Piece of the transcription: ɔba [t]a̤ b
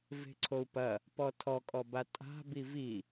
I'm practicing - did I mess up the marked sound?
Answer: yes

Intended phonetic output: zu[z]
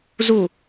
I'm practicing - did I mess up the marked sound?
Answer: yes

